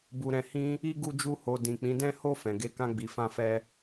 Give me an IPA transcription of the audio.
bu˨ɾɛ̃˨ hĩ˧ | i˧ ɡu˧d͡ʒu˧ho˨ dĩ˨k͡pĩ˨˦dɛ̃˦ ho˧ fɛ̃˨ɡe˨˦kã˧ ɡ͡bi˨fã˧fɛ˧

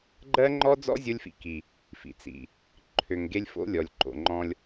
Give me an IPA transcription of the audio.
ɡ͡ǃɜ˦ŋ͡ǃɔ˦d͡zɔ̰˦ zʲo˦lʲfḭ˨ ki˨ | fḭ˨t͡sḭ˨ | ǃʰø˨ŋɡe˦lʲ fo̰˦lʲɔ˨lʲǃo̰˨ŋ͡ǃɔ̃˦lʲ

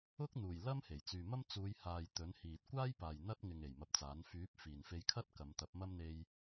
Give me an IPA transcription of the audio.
ʊ˥k̚n̪uː˨˩j lɐ˥m he˨˩jt͡syː˨mɐ˥m t͡suː˨˧jhaː˨j t̪ɵ˨˥nhiː˨t̚ kʷaː˥jpaː˨j n̪ɐ˥t̚ ŋɪ˨ŋ e˨jmɐ˧p̚t͡saː˨˥n fyː˨˥p̚ fiː˨nfe˧jkʰɐ˥t̚ kɐ˨˧mt̪ɐ˨˥p̚mɐ˥m n̪e˧j

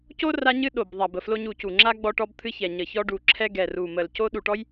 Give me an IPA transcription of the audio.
co˥ ra˥ɲɨ˥ ɗo˧˩b ðˤa˧˩bə˧˩flo˥ɲu˧˩ cu˧˩ ŋ͡ǁa˥ ɡ͡bɔ˥ʈɔ˥b t̪ʰɨ˥çɛ˧˩ɲə˧˩çɔ˥ ɖu˧˩ǁʰɛ˥ ɡɛ˧˩ru˧˩mə˧˩l co˥ ɗu˧˩ʈɔ˥j

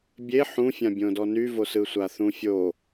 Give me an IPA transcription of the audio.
bʲe ħũfʲãbʲõdɔ nyvo sɯsʷaθũfʲo

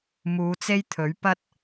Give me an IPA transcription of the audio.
muː˨˧t͡se˥jt̪ʰɵ˨˥ɥ pɐ˥t̚

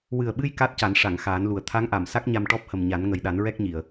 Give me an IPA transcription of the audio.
wɨ˨˩ə̯ɓɨ˧j ka˦˥t̚ca˨˩˦n ʂa˨˩˨ŋ xaː˨˩˦nlu˨˩ə̯ t̪ʰa˧˥ŋʔa˨˩˨msa˦˥k̚ ɲa˧mʈɔ˦˥p̚hə˨˩m ɲa˨˩˦nŋə˨˩jɗa˨˩˦n ɹɛ˦˥k̚ɲi˨˩˨ə̯

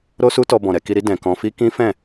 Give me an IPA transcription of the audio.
ɾo˦su˦tɔ˧ bɔ̃˨ɾɛ˧ki˧ɾi˦ dɛ̃˧kɔ̃˦ fi˦kĩ˦fɛ̃˦˨

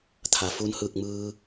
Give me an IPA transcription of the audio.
t̪ʰa˩ fu˧nhɯː˧˩k̚mɯː˧

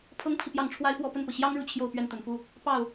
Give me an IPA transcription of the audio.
pʰɤ˥ŋpʰi˨ pjɑ˥˩ŋʈ͡ʂʰwa˥ɪ̯fwɔ˥˧ pə˥˩npɤ˩ɕjɑ˥ŋ ɻu˥˧t͡ɕʰjo˥˧ʊ̯ pɥɛ˥˩nt̪ə˨˩nfu˥˩ | pɑ˥˩ʊ̯

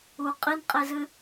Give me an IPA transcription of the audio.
u qʼinqʼezɨ

